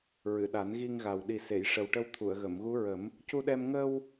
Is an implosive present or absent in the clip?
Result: present